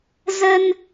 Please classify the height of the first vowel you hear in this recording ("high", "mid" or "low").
mid